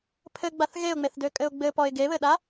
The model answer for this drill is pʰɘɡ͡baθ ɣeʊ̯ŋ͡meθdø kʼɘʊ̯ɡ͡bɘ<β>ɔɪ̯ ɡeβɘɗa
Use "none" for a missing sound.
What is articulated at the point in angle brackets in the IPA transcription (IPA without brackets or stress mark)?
p